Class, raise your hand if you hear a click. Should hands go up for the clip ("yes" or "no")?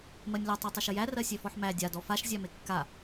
no